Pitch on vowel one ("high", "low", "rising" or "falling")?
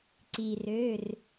low